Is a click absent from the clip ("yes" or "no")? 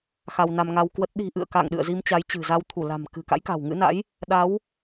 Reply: yes